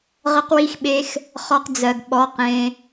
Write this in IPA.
ʁə˧qwi˧xɓe˧x | χɔ˧qd͡zɜ˨ɡ ɓɔ˨˦q ẽ˧

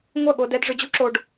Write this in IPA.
ŋʷɜ˦˨ɠo˧dɛ˧d ʐʏ˧d͡ʑu˦ǁo˧ɖ

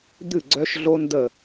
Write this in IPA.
d̪ɨ˧˩ ɡ͡ǀœ˧ʃɮo˧ndə˧˩

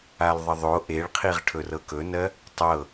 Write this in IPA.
alðˤəðˤo ʔeɭqʰiʁ ʈʰɵrɤkɵnɜ | tˤɤ

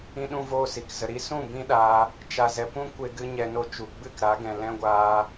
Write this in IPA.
ĩ˦ɗũ˦voː˦si˨k zə˨ɾi˧ sũ˦˨ bĩ˦ɗaː˧ | t͡ʃa˨zɛ˨ pũ˦kʷe˧ɡɨ˧ ɲɛ˧no˧t͡ʃu˨ ɡ͡bɨ˦˨kɾa˨˦ɡɛ̃˨ lɛ̃˦ɡʷaː˧

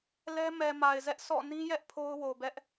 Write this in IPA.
lɛ˦ mɛ˨ ma˨ɪ̯zɛ˦ʔ sʰɔ̰˦˨ nĩ˦jɛ˦ʔ pʰo˦ʊ̯wo˨bɛ˦ʔ

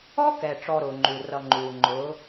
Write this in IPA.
ɔ˦kɛ˨ ʈ͡ʂɔ˧ɾʊː˨ŋ͡ǃu˨ rʌ˨ŋ͡ǃuː˨ŋ͡ǃʊː˨˦

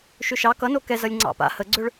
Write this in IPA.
ʃʏʃɑ kʌno kɛzʌlʲ ŋ͡ǀɑ̰pa̰ həɡ͡ǀøɭ

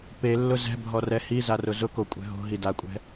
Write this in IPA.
pelːʊ zɛ̤bʱɔ rɛhi zarʊzʊko kʷʼɛ̤ɦo̤ ɦidakʷʼɛ̤

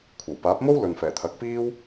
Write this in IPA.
kʷʰɐ˨˩wpaː˨˥p̚mo˥w lɵ˨n fɛː˨˩t̪ʰɐ˨˥k̚piː˥w

